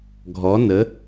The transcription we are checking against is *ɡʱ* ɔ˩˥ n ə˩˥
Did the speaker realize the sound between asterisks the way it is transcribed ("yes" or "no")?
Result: yes